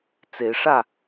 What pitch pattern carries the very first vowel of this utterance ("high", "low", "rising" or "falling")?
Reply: rising